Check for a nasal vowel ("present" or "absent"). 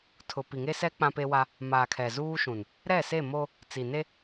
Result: present